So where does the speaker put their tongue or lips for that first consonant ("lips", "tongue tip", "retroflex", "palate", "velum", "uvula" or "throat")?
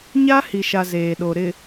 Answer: palate